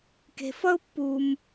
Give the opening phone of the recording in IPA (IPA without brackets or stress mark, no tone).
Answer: k